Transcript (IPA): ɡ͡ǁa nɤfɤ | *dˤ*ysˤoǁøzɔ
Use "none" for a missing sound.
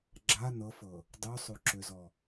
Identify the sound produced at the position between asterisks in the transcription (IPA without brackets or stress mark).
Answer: dˤ